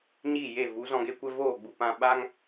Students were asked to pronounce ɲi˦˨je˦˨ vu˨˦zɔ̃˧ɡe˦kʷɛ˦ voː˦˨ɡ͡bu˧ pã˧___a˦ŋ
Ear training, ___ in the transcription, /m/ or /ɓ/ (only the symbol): ɓ